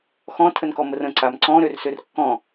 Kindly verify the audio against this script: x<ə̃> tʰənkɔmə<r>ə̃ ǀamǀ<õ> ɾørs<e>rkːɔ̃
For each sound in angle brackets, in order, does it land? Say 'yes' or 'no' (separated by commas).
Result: no, yes, no, no